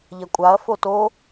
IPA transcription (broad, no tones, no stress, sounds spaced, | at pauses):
ʎ ɐ kʷʼ a ɐ̯ f o t o